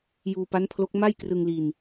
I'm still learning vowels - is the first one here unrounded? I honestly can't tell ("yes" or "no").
no